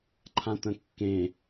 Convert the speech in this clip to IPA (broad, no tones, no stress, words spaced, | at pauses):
ǃʰãt̪ə̃kːẽ